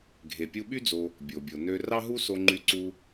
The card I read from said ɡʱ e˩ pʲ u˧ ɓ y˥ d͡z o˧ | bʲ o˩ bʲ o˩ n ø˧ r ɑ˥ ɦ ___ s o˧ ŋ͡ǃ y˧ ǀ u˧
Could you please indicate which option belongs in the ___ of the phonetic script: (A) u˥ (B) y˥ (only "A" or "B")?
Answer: A